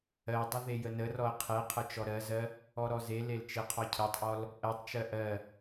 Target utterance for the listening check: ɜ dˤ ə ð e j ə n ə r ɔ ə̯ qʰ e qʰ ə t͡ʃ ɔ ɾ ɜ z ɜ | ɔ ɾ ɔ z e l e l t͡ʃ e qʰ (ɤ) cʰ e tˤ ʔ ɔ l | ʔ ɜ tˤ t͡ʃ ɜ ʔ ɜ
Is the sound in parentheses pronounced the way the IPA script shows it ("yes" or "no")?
no